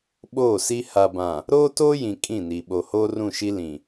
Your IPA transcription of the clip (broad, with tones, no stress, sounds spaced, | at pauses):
ɓ oː˦˨ s i˦ h a˨ b ã˨ | ɾ oː˦ t oː˦ j ĩ˨ kʼ ĩ˦˨ n i˨ ɓ o˨ h oː˦ r ũ˦˨ ʃ i˦ l ĩ˨